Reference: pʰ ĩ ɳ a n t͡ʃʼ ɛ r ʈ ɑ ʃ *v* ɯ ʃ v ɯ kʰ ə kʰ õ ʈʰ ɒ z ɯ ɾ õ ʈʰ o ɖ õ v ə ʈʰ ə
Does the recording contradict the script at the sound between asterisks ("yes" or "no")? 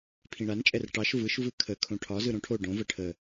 no